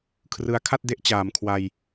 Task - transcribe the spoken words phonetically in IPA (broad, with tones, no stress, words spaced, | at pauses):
kʰrɯ˧a̯ kʰa˥˩t̚de˦˥ʔ t͡ɕaː˩˦mkʰwa˧j